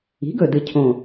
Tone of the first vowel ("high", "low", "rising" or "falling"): rising